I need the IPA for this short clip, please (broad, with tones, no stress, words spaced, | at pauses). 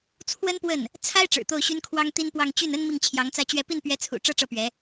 t͡sʰwə˥npwə˥˩n | t͡sʰa˥ɪ̯ ʈ͡ʂɻ̩˨˩t̪o˥˩ʊ̯ɕy˥nkʰwɑ˥ŋ t̪i˥npwɑ˥˧ŋ t͡ɕy˥˩nə˥n mi˥˩ŋt͡ɕʰjɑ˧˥ŋt͡sä˥t͡ɕɥɛ˥˧ pi˥˩npɥɛ˧˥t͡sʰṵ˨˩ ʈ͡ʂɤ˥ʈ͡ʂɤ˥˩pɥɛ˧˥